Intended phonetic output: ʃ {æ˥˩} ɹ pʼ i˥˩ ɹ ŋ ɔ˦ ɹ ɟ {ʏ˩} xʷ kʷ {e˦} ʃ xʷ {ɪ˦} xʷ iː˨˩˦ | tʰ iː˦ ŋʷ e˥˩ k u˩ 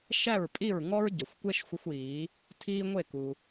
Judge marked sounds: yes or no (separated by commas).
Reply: yes, no, yes, no